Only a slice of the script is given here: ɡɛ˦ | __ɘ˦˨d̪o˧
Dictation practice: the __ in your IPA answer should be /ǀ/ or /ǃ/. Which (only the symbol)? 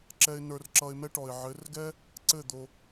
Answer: ǀ